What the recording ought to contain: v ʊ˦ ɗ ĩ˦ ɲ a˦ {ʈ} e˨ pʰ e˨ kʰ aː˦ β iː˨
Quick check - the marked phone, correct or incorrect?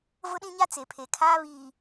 incorrect: t͡s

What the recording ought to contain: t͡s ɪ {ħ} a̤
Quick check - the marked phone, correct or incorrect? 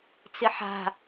correct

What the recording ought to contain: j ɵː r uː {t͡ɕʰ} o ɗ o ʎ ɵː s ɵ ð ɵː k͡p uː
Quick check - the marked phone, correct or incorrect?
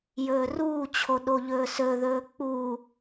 correct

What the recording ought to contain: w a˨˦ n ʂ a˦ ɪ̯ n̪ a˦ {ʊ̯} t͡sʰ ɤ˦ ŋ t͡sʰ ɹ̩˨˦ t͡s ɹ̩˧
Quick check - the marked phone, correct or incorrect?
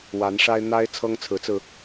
incorrect: ɪ̯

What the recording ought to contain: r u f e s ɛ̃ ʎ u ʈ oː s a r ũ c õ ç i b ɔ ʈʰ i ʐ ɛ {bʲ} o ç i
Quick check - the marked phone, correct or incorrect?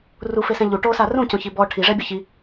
correct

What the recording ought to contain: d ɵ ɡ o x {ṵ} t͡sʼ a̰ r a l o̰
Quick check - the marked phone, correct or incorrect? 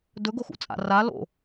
correct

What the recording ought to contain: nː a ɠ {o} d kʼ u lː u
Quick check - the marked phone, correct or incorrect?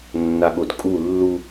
correct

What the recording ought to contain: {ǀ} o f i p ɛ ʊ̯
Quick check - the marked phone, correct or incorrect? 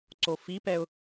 correct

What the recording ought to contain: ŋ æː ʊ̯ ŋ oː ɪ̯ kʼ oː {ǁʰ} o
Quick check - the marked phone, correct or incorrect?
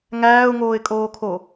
incorrect: kʰ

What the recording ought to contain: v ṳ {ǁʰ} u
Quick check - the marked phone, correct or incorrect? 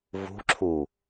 correct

